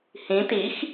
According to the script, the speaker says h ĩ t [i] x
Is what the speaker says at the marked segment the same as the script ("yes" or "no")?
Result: yes